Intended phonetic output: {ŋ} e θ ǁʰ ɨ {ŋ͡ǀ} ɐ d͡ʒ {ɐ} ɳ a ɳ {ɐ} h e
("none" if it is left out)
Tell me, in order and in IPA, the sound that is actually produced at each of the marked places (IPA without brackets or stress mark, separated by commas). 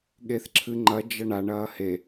ɠ, ŋ͡ǃ, ɐ, ɐː